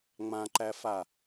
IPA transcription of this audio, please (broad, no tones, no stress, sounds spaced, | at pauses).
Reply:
ŋ͡m ã ǃ æ f a